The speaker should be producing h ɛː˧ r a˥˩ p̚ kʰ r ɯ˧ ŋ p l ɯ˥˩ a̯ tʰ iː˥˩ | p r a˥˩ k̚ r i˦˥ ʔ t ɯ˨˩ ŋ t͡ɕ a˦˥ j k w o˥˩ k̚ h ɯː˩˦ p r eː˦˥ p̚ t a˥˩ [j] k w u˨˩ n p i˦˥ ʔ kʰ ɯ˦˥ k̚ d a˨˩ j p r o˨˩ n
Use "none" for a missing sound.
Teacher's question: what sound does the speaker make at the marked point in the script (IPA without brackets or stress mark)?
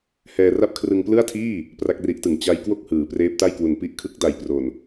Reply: j